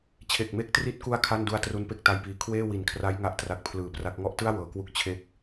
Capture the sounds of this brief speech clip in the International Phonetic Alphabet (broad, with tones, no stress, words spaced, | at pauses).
t͡ɕʰe˨˩k̚me˦˥k̚tri˦˥t̚ku˦˥a̯ kʰa˥˩ndu˦˥a̯ tru˦˥npe˥˩k̚ ta˥˩jpiː˧ kʰweː˥˩ wi˨˩nkʰra˦˥j ŋa˥˩ʔtra˦˥k̚pʰlɯː˨˩pra˦˥k̚ ŋɔ˦˥ʔtɯ˥˩a̯ wɤː˩˦kwu˥˩k̚ t͡ɕʰe˥˩k̚